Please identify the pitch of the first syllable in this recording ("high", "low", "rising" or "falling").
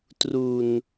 low